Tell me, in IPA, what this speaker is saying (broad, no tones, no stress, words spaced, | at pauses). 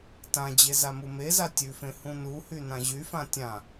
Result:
tãd͡ʑe zamumeza tʲʉfẽ hũnuhy nãʑyfã tʲã